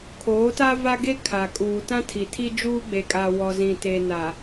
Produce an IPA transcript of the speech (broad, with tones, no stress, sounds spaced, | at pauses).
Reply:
kʰ oː˨˦ t a˦ v a˦ ɡ e˦ kʰ a˨ kʼ uː˨ t ã˦ tʰ i˨ tʰ i˦ d͡ʒ uː˦ ɡ͡b e˨ kʼ a˨ w ɔ˨ z ĩ˨ t e˨ n a˨